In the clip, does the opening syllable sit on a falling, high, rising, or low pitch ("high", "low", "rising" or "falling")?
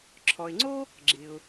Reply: low